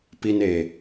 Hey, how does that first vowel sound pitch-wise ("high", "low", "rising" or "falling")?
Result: low